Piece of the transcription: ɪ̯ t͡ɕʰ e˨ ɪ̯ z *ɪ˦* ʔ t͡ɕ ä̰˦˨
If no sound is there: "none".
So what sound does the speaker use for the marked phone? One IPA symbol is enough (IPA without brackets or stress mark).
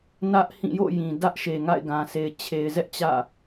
ɛ˦